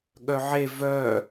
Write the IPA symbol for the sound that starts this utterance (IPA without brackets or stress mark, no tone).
ɠ